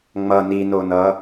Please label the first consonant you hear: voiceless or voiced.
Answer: voiced